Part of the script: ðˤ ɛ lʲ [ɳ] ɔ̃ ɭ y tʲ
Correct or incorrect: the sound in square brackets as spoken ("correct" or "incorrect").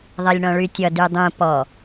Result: correct